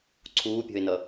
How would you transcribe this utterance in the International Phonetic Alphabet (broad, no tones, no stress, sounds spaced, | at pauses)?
ǀʰ uː pʲ ɔ̤ ɪ̯ n ʌ